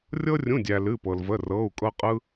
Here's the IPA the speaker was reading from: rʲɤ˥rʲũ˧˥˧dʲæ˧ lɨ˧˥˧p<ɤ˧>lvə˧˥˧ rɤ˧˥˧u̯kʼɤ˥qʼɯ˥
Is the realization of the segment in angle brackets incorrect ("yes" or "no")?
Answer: no